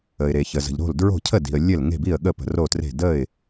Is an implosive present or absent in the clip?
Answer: present